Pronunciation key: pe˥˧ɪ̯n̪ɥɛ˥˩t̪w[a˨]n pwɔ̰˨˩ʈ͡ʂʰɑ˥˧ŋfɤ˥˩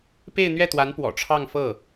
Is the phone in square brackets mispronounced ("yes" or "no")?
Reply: yes